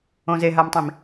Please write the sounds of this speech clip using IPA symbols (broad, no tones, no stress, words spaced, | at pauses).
õzeɦamtˤĩm